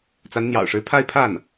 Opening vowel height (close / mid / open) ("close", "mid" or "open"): open